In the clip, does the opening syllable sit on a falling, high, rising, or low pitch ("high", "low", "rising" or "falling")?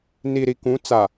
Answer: low